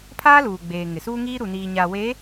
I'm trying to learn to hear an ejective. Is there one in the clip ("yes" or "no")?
no